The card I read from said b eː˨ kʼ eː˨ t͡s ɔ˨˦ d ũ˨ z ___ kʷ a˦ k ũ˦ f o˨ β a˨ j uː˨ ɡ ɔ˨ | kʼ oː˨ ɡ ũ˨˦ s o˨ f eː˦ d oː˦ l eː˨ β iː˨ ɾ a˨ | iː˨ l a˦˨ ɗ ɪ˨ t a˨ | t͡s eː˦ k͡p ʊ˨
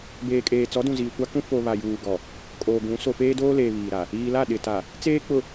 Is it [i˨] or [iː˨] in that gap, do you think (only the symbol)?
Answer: iː˨